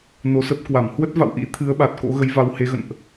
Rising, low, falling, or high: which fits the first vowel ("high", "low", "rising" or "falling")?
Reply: low